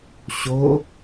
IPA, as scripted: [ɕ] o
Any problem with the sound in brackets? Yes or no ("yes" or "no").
no